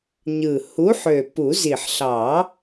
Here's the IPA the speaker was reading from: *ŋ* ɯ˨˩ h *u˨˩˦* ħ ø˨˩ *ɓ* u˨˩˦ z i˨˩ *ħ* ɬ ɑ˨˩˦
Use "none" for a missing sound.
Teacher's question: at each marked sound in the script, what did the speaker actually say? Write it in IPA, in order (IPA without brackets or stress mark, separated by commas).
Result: ɲ, u˨˥, p, ħ